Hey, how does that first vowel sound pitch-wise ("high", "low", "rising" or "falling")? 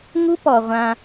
high